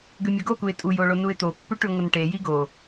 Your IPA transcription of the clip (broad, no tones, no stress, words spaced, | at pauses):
ɡʉmʲoɡokuɪ̯ tʼujo ɭonuɪ̯t̪opːʉ ʈʉŋʷɐnʈeji ɡo